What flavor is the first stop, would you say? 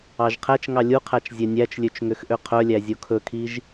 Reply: aspirated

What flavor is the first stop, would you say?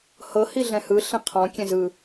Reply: aspirated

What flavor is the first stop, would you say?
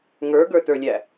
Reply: plain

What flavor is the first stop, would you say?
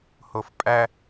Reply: ejective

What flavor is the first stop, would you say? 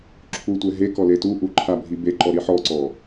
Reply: click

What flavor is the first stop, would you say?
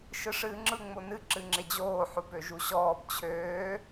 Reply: click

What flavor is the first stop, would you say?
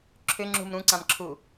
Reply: click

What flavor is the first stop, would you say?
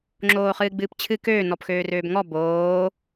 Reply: click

